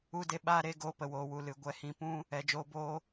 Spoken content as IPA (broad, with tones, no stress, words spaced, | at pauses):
u˧de˧ ɓaː˧ɾe˧ ɡoː˧pə˨woː˨wu˨ lɨ˨ɡʷɛ˧hĩ˧ pũ˦ | ɛ˨d͡ʒoː˧boː˦